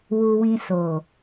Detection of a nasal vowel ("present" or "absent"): present